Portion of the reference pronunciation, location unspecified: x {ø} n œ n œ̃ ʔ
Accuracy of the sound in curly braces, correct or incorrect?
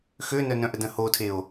correct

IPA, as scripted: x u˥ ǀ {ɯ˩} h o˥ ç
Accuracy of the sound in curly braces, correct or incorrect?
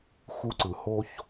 correct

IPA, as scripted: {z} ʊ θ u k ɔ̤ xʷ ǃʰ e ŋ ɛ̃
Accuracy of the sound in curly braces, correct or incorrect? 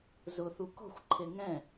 correct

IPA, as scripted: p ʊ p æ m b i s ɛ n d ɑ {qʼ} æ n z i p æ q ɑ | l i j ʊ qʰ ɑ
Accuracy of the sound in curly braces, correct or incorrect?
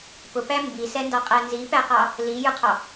correct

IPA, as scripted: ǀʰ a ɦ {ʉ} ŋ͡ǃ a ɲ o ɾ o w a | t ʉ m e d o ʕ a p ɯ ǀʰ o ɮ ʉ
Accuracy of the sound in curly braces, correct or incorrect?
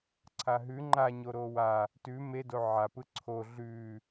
correct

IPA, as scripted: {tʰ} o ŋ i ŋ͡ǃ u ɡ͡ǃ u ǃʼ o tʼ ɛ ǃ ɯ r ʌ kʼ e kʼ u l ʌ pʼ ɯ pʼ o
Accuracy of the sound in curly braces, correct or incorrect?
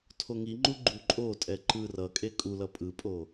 correct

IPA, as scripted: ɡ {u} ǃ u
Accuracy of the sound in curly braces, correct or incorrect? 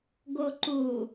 incorrect: o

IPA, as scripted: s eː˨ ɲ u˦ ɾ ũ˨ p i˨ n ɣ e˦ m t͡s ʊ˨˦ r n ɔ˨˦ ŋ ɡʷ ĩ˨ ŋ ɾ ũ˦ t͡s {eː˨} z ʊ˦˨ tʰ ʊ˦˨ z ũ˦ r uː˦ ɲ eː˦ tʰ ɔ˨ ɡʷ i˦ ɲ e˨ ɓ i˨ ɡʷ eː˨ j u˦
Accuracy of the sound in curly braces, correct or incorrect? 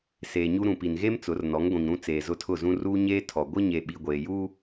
correct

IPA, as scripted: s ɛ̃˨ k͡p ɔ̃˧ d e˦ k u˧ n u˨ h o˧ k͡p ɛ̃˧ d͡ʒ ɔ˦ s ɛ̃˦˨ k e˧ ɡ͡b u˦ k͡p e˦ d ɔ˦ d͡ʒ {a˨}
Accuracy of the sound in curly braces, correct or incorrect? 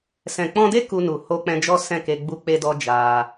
incorrect: a˧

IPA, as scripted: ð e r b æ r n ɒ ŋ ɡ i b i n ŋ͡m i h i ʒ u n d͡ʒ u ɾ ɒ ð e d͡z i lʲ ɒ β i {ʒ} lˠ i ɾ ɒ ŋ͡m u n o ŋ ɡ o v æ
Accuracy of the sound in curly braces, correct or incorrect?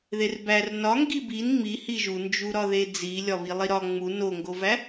incorrect: none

